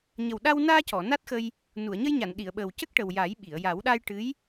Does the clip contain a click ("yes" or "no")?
no